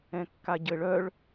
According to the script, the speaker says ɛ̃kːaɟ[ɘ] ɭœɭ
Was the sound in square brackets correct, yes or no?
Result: yes